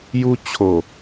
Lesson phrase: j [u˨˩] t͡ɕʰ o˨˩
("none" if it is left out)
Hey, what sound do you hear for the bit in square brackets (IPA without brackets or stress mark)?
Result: u˦